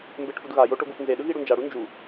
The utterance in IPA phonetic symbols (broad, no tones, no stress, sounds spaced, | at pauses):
m b e ʈ f u d ɣ a j o ʈ o ɡ u f n z e ɗ ɯ ɣ i ɽ u n d͡ʒ a ɽ u n d͡ʒ u